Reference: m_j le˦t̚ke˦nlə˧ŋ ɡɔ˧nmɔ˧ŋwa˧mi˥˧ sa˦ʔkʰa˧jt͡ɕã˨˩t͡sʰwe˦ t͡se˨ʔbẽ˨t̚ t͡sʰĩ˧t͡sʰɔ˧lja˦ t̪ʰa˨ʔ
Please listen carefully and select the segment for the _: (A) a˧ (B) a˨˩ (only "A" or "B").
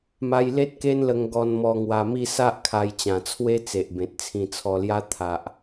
A